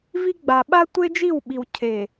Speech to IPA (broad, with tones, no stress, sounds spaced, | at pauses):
v i˦ ɡ͡b a˨ ɓ a˦ tʷ e˦ d͡ʒ i˦˨ w ɓ i˨ w cʰ e˨